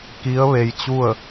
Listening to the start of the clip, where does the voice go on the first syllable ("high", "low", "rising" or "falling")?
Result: rising